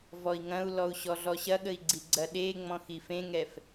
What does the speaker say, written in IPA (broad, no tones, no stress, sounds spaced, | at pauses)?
v ɔ i̯ ŋ ɐ̃ u̯ l ɔ u̯ ɕ ɔ ɮ ɔ ɕ ɐ ɠ ə i̯ ɡ͡ǀ i ɡ͡ǀ ɐ ɗ e ŋ͡m ɔ̃ x i f ẽ ŋ ɛ f